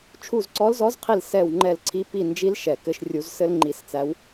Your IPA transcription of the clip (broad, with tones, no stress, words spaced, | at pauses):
t͡ʃʰu˦˨zǀɔ˧˥lzɔ˧˥zqʰi˦˨l sɛ˦˨w ŋ͡ǃɛ˦˨lǀʰi˧˥ pi˦˨nd͡ʒi˧˥l ʃɛ˦˨kɘ˥ʃ rʲu˧˥zsɘ˥l ŋ͡ǃi˦˨st͡sæ˧˥w